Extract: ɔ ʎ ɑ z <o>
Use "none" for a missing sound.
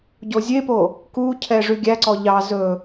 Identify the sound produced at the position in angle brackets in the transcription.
ɵ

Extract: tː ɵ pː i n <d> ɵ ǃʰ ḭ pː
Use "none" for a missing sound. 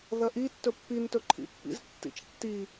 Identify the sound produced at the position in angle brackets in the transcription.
t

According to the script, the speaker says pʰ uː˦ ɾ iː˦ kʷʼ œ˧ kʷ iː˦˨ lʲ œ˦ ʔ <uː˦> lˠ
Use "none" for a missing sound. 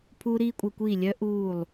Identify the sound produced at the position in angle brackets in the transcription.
uː˦˨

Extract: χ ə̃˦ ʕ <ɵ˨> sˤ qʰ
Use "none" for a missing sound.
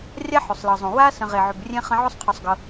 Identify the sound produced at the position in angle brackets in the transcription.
ɵ˥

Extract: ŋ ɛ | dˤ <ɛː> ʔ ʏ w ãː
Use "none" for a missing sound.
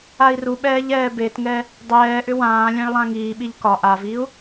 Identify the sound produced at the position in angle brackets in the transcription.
ɛː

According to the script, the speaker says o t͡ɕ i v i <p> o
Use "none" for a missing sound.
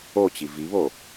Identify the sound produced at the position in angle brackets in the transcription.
β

